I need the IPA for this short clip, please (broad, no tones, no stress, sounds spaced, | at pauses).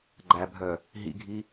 ɡ͡ǃ æ bʱ œ | ɦ ḭ ɡʱ i